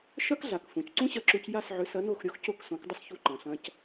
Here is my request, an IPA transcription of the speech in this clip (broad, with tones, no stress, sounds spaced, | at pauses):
ʃ ɐ˥ k ɮ a˩ k f ũ˩ c ǀ ũ˥ ɕ ɐ˧ ǁ u˧ c j a˥˩ s ʕ ʏ˩˥ s ɐ˩˥ n o˥˩ x ɾʲ o˥ x c o˥˩ k s õ˩˥ k dˤ ə˥ s ç u˧ ǃ ɐ̃˩ ɬ ɐ̃˧ c